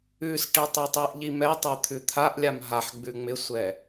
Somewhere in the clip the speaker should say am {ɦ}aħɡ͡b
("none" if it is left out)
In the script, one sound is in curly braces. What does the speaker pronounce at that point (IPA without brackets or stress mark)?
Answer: ɦ